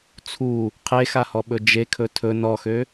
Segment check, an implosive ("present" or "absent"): present